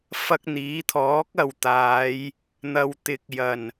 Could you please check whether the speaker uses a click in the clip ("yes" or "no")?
no